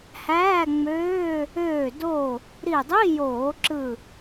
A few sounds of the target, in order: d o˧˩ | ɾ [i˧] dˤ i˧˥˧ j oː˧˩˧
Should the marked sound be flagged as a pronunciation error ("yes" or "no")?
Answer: yes